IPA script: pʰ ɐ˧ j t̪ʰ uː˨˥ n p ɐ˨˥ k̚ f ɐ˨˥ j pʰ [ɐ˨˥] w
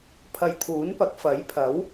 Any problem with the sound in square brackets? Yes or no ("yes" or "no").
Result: no